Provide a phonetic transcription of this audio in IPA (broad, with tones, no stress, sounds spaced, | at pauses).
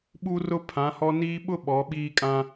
ɓ u˦ r ʊ˦ pʰ ã˨˦ h ɔ˦ n iː˦ ɓ ʊ˦ ɓ ɔ˨˦ ɓ iː˦ kʼ ã˦